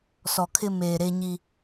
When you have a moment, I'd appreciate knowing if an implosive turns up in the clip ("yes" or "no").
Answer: no